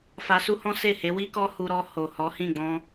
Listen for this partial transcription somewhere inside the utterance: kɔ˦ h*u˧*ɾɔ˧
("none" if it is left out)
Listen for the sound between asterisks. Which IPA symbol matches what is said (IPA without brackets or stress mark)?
u˧